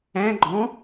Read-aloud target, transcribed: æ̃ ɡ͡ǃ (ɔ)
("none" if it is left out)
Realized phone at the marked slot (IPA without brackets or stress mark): ɔ̃